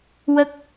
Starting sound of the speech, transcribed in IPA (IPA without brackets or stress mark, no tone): w